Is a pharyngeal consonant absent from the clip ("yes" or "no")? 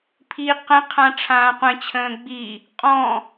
yes